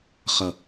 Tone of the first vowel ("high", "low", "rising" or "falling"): low